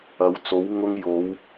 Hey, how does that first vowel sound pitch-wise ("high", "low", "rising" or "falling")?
rising